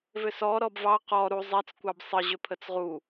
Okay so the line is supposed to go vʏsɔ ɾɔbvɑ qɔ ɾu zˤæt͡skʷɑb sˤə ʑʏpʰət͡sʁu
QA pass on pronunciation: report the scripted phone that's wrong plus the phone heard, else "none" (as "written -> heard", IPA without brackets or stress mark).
none